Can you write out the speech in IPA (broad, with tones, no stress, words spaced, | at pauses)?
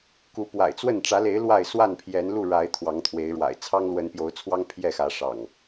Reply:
ku˨˦pwa̰˨˩ɪ̯t͡swə˥˨n ʈ͡ʂä˨˦le˨˦ɪ̯ lwa˥˨ɪ̯ swa˥˨npʰjɛ˨˦nlu˥˨ ɻa˨˦ɪ̯ t̪ʰwɑ˨˦ŋt̪ʰwe˨˦ɪ̯ɻwa̰˨˩ɪ̯ t͡sʰɑ˦ŋlwə˨˦npjo˨˦ʊ̯t͡sʰwɑ˦ŋ pʰjɛ˥˨xä˨˦ʂɑ̰˨˩ŋ